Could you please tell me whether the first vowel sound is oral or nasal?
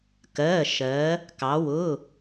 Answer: oral